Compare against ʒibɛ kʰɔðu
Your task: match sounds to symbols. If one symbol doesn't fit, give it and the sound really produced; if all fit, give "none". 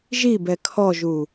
ð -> ʒ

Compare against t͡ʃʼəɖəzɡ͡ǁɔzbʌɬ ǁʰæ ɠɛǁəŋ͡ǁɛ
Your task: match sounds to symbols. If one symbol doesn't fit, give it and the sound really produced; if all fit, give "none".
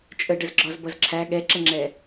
ɬ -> z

